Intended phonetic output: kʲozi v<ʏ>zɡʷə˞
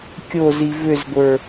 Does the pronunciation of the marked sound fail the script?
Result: no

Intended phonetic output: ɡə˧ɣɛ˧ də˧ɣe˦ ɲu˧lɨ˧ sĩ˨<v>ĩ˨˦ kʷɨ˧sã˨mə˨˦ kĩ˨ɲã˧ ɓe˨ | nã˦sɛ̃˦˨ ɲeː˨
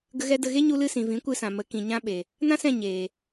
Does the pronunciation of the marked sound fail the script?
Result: no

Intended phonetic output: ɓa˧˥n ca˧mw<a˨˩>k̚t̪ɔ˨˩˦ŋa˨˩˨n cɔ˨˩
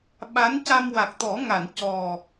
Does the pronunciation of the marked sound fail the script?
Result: no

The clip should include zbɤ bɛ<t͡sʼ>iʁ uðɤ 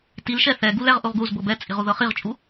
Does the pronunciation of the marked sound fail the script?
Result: no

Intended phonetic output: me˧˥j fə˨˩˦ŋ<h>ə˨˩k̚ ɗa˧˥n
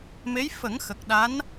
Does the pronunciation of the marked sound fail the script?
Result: yes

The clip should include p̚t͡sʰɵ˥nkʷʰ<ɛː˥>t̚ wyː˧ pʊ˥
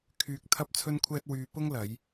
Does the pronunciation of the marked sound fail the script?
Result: no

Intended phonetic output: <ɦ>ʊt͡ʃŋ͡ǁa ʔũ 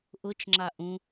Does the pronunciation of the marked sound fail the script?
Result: yes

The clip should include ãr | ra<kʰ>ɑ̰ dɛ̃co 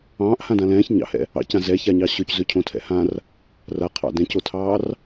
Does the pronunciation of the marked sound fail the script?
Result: yes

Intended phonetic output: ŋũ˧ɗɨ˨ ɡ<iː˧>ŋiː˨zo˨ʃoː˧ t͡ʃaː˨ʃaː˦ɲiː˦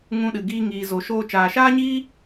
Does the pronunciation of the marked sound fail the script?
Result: no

